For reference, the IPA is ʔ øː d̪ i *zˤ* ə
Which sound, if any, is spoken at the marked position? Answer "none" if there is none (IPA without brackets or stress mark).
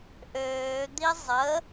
zˤ